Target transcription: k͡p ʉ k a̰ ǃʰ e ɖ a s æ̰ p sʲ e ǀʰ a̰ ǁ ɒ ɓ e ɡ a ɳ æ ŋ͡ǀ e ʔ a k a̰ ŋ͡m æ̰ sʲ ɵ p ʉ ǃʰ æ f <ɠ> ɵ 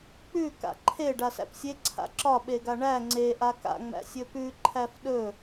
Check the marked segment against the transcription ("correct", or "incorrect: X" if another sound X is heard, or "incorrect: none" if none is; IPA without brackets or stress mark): incorrect: ɗ